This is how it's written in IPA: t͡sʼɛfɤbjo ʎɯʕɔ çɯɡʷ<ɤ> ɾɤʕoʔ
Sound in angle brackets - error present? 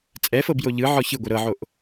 yes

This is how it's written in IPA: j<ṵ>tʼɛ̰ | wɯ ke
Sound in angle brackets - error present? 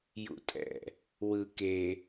no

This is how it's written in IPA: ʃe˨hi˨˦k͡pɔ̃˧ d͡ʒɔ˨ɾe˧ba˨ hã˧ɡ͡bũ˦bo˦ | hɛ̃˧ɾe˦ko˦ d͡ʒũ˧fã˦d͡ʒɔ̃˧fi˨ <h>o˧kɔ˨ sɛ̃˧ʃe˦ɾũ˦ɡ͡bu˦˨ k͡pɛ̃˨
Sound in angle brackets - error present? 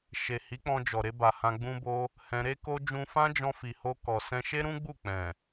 no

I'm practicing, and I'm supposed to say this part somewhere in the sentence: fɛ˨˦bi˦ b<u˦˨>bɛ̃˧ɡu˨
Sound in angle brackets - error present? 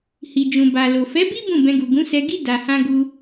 yes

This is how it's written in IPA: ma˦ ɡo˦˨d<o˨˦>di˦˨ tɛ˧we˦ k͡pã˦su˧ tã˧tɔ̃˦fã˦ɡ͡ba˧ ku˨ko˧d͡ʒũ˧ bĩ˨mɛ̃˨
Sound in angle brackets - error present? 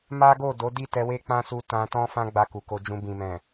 no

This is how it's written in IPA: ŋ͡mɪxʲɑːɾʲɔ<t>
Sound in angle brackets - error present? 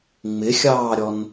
yes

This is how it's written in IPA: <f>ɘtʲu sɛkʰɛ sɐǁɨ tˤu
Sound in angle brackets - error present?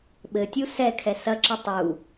yes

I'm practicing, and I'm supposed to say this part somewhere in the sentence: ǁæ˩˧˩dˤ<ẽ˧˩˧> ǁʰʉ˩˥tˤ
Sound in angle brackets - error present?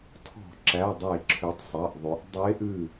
yes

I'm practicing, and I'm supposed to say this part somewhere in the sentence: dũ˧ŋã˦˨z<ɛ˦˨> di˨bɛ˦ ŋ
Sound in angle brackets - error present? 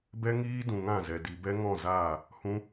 yes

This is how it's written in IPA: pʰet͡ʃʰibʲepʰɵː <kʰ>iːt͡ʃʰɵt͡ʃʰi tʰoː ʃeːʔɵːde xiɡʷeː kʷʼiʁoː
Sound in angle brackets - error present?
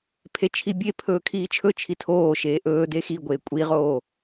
no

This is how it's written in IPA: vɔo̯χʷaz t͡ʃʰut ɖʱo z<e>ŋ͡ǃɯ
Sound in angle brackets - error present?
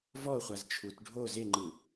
no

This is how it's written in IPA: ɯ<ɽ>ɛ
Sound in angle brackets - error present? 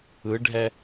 yes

